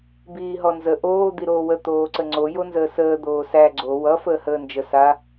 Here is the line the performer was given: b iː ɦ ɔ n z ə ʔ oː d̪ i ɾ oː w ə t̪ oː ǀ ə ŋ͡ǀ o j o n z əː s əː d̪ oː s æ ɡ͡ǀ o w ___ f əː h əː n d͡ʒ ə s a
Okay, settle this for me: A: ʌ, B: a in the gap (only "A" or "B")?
A